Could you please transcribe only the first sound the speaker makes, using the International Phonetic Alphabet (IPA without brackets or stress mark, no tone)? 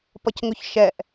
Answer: p